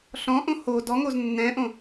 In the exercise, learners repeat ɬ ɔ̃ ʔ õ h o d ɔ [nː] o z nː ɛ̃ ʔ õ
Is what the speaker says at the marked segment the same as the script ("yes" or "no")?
no